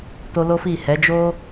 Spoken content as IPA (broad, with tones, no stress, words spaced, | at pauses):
to˦ lo˦fi˦˨ hɛ˨˦d͡ʒo˦